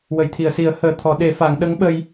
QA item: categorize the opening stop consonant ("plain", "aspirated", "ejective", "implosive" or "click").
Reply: aspirated